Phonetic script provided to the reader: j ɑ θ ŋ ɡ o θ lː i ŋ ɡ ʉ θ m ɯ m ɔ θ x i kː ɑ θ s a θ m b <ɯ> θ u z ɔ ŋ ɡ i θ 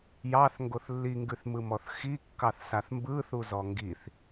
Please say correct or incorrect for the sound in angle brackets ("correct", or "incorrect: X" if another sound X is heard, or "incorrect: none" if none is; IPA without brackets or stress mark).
correct